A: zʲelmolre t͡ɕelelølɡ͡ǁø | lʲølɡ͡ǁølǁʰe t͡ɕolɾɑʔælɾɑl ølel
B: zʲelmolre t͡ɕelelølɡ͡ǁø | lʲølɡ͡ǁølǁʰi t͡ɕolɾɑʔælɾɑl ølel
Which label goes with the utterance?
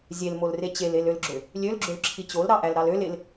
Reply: B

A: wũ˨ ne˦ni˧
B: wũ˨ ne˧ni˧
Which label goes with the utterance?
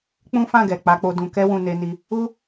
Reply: B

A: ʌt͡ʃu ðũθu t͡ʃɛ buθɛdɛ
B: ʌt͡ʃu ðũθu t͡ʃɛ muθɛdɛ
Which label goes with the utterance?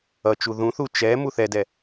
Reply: B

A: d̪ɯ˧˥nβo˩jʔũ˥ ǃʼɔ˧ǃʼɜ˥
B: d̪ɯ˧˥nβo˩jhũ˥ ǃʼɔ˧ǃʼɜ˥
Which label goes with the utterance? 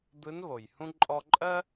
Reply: B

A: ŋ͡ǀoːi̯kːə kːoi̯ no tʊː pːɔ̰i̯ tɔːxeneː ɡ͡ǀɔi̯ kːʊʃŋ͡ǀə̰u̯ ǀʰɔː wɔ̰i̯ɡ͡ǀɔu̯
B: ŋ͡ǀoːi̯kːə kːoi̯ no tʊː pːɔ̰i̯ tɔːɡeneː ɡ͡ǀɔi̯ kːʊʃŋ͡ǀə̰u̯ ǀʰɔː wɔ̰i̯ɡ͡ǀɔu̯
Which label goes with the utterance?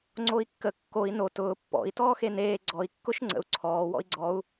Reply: A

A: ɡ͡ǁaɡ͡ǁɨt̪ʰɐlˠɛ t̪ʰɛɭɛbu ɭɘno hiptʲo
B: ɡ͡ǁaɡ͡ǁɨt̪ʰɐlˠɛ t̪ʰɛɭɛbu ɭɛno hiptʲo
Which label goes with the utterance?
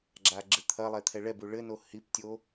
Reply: A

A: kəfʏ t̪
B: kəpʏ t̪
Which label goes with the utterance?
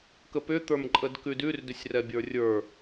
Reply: B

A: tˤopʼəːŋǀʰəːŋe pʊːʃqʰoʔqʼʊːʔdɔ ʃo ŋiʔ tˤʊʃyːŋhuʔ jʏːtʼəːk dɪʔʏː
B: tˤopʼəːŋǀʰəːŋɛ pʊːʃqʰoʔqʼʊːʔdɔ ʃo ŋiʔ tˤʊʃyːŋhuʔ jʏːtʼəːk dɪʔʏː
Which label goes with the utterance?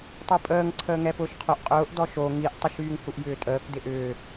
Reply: B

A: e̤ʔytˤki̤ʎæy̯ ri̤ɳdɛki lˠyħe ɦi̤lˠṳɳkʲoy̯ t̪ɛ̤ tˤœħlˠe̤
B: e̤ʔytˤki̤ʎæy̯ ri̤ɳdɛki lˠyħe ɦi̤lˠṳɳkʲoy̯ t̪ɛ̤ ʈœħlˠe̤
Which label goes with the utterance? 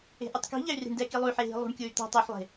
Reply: A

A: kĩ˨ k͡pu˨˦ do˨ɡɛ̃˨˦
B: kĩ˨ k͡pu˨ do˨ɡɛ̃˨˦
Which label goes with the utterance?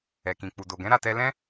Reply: B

